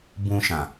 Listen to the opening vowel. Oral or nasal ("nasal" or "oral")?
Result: nasal